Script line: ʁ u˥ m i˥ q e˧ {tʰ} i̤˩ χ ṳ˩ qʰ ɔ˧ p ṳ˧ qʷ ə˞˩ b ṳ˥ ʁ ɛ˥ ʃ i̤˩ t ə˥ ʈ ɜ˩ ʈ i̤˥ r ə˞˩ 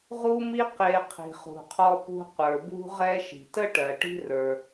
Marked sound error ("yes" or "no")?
yes